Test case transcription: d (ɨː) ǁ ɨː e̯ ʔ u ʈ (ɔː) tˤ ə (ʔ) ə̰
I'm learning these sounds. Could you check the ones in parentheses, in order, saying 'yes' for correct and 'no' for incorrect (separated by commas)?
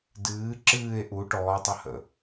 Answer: yes, yes, no